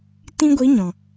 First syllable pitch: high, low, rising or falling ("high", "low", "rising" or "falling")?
high